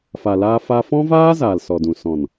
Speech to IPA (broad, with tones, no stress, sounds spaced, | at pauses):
f a˨ l aː˧ f a˧ f ɔ̃˦ v aː˦ z aː˨ l s ɔ˨ d ũ˨ s ɔ̃˨ n